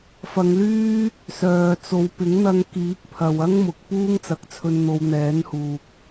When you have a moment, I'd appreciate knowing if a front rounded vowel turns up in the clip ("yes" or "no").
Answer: yes